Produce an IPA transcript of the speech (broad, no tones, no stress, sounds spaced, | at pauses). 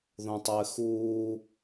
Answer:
ð õ tˤ ɘː x uː